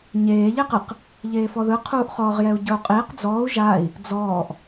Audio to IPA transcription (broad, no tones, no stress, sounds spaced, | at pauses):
ɲ eː ʎ e q ɯ q | ʎ eː f ɔ ð ɯ qʰ uː ʔ χ ɔ ʁ j ɛ u̯ ɟ ɤ u̯ qʼ eː q d͡z ɔː u̯ ʒ aː i̯ | d͡z ɔː ʔ